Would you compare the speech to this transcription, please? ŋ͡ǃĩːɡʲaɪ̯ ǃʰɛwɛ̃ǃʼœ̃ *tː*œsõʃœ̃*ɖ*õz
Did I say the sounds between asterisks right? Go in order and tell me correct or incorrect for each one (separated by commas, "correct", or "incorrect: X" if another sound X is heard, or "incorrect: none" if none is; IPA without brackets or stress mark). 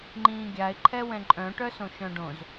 incorrect: ʈ, correct